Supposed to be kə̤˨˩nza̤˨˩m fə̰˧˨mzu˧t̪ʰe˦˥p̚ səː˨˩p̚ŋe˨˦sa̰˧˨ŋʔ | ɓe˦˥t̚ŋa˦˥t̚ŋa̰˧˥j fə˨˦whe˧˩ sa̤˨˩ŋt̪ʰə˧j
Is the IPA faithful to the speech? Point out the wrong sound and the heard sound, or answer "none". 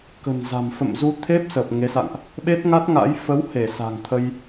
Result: none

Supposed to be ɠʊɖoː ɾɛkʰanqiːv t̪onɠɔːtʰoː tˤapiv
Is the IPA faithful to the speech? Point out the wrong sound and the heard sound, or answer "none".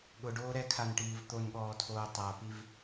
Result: q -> ʈ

